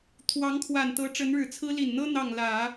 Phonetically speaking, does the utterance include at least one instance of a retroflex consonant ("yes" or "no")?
yes